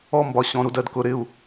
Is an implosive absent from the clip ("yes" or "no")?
yes